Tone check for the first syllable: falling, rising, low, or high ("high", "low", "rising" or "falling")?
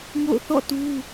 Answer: falling